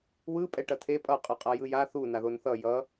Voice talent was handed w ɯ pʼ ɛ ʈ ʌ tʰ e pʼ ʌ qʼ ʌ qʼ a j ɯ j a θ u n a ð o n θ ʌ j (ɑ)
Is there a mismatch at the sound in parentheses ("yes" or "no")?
yes